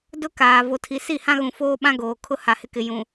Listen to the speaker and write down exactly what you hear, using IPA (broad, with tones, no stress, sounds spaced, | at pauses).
d ʊ˦ k aː˨ v o˨ tʰ i˨ s i˦˨ h ã˦ ɣ ũ˨ f oː˦ ɓ ã˦ ɡ oː˨ kʰ ʊ˦ h a˨ h ɪ˦ k ɪ˨ j ũ˨